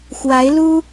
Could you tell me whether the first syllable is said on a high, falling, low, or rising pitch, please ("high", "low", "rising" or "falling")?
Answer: rising